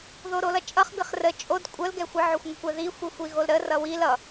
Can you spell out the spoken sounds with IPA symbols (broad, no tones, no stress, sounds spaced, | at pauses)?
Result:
ð o ɾ o l ʌ t͡ʃʼ ʌ χ ɡ ə χ r ə t͡ʃʼ o d kʷʼ ə l ɡ ɛ xʷ ə ʕ o xʷ ŋʷ ə kʷ ɛ ð i xʷ i xʷ i ɣ o l ɾ ə r ʌ w i l ʌ